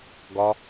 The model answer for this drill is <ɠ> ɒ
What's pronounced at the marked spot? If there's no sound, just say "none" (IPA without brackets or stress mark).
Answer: ɡ